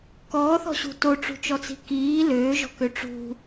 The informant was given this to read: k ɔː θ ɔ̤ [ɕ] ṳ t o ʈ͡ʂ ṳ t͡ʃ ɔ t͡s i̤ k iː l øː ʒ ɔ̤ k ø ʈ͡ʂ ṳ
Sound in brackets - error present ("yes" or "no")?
no